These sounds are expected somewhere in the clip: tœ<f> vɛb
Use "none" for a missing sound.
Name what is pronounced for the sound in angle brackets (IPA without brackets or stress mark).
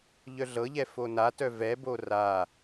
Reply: none